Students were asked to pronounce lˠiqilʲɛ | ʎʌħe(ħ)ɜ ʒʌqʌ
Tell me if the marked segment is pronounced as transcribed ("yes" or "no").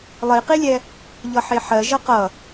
yes